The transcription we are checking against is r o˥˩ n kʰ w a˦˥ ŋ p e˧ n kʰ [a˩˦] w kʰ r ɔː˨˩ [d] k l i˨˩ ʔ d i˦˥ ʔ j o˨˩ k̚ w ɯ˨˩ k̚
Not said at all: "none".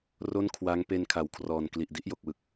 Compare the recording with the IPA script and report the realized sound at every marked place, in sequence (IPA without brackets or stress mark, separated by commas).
a˩˦, n